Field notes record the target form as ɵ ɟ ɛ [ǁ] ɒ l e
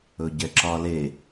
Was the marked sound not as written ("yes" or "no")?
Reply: no